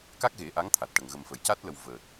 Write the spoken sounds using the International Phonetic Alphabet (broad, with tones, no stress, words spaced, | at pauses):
ka˦˥k̚ɣe˨˩˦ ʔa˧˥ŋt̪ʰa˨˩t̚ʈə˨˩ŋ ɣə˨˩m fə˨˩˨jca˦˥t̚lə˨˩w vəː˨˩t̚